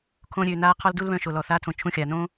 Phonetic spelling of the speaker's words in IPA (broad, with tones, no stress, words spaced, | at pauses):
kʰõ˧ɾʲø˨ naː˦qʰɔ˦ldu˦lβœ̃˧ ʃo˨lɔ˨θaː˧tʰõ˨ t͡ʃʰũ˧xʲaː˨nõː˦